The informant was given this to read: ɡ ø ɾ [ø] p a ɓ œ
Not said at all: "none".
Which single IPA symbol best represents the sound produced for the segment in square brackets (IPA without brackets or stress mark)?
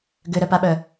œ